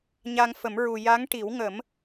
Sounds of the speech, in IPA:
ɲa˧ŋfə˨˩˦mɹu˨˩ ja˧˥ŋʈi˨˩˦w ŋə˨˩˦m

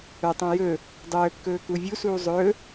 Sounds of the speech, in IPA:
œtˤõ jɵ | dˤɵː kːɵːkuvʲu suːzˤɵː

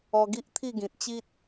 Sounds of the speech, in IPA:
ɔ˧ɡi˦ʔ t̪ʰi˥˧ɡĩ˨t̚t͡ɕi˦t̚

